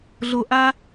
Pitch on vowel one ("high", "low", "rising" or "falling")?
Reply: low